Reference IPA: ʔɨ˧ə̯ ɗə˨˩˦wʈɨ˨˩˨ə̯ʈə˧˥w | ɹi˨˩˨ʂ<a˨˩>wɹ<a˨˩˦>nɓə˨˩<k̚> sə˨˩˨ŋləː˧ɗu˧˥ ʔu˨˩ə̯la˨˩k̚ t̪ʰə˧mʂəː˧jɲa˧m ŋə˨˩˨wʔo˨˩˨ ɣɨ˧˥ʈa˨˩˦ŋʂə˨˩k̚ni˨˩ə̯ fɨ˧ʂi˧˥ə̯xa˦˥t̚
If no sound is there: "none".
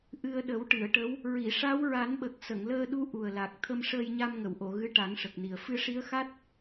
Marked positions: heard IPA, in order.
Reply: a˧˥, a˨˩˦, k̚

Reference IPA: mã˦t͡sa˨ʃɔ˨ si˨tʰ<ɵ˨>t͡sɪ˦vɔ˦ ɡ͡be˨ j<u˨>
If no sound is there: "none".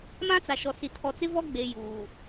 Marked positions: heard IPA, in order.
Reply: ɔ˨, uː˨

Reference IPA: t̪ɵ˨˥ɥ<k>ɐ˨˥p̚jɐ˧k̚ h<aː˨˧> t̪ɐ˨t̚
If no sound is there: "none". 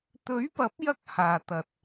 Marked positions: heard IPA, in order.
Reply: p, aː˨˩

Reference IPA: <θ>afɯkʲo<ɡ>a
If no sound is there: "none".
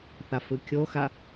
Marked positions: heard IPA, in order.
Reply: θ, x

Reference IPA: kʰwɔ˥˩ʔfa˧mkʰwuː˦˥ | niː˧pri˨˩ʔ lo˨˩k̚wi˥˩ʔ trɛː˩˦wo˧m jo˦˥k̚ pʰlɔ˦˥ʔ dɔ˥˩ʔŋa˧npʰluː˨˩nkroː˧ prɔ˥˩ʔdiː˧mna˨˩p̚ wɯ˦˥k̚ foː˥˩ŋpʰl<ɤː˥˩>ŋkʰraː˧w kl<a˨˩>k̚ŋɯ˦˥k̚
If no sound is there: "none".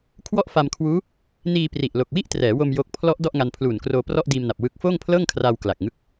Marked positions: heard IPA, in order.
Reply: ɤː˥˩, a˨˩

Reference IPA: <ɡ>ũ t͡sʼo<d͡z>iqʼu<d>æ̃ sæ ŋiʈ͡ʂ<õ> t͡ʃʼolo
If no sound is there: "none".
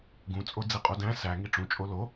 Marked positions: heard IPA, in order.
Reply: ɡ, d͡z, d, ũ

